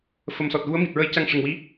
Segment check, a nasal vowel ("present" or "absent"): absent